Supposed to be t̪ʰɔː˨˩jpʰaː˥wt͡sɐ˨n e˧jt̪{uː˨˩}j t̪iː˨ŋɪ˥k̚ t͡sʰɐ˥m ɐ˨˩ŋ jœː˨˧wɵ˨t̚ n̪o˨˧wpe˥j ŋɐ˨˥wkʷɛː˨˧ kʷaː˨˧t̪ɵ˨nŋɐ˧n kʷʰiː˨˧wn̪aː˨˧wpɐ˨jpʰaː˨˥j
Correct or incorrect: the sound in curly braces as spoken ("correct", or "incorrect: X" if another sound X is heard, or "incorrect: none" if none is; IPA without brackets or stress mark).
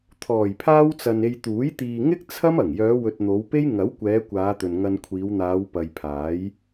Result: incorrect: uː˨˥